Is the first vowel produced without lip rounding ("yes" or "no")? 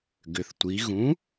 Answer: no